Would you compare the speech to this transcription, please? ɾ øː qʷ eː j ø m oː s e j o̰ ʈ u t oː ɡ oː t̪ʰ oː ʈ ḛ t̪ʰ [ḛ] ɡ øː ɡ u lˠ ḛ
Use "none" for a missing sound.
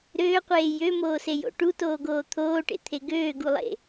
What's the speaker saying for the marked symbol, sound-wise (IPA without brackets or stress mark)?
e